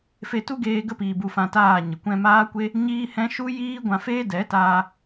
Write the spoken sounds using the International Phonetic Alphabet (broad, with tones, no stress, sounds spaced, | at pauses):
f e˧ t u˦ ɡ eː˧ ɡ ə˦ p iː˨ b u˨ f ã˨ t aː˦˨ ɲ ə˨ kʷ ɛ̃˧ m aː˦ kʷ e˦ | ɲ iː˦ h ɛ̃˦ ʃ u˦ j iː˦ ɡʷ ã˧ f eː˦ d ɛ˨˦ t aː˧